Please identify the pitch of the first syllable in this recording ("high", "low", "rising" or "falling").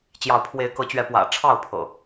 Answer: rising